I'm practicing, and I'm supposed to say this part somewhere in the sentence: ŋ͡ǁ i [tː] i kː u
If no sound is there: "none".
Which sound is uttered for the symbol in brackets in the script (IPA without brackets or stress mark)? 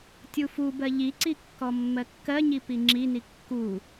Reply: n